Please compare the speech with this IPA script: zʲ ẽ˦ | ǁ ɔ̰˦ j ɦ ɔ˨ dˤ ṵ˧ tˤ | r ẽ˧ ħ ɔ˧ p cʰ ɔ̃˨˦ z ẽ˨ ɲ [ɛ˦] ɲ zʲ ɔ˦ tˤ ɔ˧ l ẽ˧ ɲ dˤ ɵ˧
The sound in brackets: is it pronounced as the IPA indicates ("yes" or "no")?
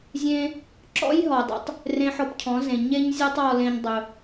no